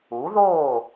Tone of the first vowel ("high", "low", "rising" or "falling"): rising